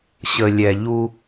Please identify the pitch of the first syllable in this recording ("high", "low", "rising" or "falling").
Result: low